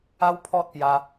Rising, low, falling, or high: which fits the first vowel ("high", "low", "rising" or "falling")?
high